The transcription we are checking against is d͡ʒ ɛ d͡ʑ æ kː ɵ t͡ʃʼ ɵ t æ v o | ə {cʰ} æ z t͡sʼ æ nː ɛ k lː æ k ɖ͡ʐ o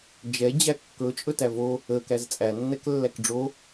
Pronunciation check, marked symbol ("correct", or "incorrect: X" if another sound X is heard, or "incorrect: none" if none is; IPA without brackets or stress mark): incorrect: k